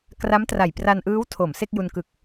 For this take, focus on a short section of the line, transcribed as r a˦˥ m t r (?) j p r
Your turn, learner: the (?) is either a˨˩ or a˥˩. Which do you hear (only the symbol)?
a˨˩